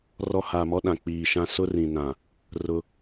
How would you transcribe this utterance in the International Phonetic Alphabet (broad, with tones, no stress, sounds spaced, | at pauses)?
r ɔ˦ h aː˨ m ɔ˦ ɗ ã˨ k͡p iː˨ ʃ ã˦ s ʊ˦ r ĩ˨ n ã˨ | r ʊ˦